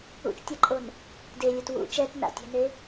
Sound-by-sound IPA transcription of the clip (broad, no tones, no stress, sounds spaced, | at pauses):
ṵ t͡ʃ tʲ a ǃʼ o n | d e lʲ u t w ṵ t͡ʃ ɛ t n a̰ tʲ ɛ̤ n e